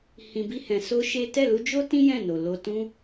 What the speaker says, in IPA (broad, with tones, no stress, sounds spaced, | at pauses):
h ĩ˧ b i˦ h ɛ̃˧ s o˦ ʃ e˦ t ɛ˦˨ l u˧ d͡ʒ o˦ t ĩ˦ j ɛ̃˦˨ n o˨ l o˧ t ũ˦